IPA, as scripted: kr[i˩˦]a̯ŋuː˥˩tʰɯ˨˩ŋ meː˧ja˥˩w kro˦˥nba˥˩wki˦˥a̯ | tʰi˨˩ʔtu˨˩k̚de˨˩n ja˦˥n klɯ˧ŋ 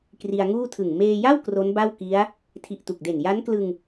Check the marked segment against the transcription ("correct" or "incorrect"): incorrect